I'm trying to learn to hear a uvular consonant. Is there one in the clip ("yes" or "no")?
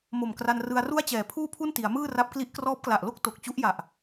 no